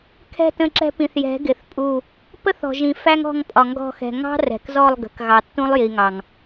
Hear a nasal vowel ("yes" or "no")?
yes